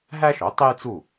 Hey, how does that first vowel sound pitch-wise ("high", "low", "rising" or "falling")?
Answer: high